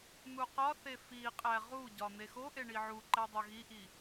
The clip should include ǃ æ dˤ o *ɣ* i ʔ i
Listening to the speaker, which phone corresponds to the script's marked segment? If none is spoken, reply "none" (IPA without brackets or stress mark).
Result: ɣ